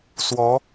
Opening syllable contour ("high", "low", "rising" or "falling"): rising